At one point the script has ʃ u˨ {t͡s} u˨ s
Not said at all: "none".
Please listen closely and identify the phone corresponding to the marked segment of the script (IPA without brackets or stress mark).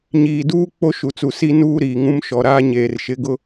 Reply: t͡s